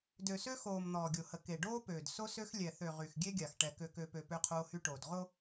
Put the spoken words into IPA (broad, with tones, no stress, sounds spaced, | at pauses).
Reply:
d ø˨ s ø˦ x oː˨ m n̪ ɔː˨ ɡʲ o˨ h ə˨ k e˨ ɖ oː˦ p øː˨ d s o˦ s ø˦ x lʲ ɛ˨ θ ø˨ ʁ y˨ x ɡʲ e˦ ɡʲ a˨ x ʈ ɛ˨ k ø˨ k ø˨ p ø˨ p ø˦ qʰ oː˦ h y˦ ʈ oː˨ d ʁ o˦